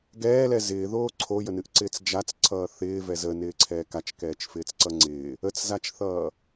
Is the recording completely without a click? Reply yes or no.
no